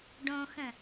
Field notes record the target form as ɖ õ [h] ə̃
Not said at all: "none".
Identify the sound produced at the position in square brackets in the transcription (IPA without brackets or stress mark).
x